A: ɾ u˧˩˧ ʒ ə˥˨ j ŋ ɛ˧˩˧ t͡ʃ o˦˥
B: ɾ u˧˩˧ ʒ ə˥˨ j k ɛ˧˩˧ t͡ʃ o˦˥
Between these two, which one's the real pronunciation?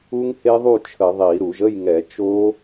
A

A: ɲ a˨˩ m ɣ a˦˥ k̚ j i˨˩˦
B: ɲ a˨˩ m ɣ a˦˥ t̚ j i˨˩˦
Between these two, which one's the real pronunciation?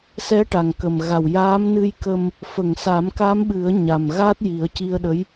B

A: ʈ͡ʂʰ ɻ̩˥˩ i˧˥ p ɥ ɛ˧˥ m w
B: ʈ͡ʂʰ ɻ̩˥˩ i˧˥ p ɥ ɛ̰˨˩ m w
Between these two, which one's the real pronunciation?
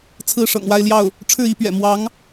B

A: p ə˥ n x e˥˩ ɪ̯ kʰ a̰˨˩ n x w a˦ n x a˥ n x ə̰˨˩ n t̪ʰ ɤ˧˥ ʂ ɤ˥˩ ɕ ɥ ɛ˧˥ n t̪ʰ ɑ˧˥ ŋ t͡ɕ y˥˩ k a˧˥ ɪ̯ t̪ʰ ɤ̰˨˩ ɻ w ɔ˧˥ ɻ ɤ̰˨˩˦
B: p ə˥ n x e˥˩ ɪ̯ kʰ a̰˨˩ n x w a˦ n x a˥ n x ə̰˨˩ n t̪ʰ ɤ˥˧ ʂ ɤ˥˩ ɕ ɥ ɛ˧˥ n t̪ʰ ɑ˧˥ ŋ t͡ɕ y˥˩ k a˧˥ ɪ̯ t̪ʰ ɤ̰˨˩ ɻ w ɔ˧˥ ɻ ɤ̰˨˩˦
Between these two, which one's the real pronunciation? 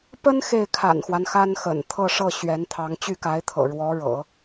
B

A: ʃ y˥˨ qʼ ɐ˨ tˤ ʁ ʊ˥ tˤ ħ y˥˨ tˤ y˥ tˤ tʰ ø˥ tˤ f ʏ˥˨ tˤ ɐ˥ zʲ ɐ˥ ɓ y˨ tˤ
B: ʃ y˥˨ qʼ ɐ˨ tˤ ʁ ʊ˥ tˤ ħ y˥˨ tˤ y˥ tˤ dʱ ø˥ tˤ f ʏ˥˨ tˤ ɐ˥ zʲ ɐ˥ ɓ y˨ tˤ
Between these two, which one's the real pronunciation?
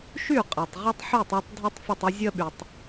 B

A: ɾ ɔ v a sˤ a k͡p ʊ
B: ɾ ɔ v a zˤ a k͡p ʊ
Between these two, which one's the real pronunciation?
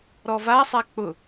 A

